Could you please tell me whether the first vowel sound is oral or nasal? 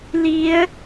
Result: oral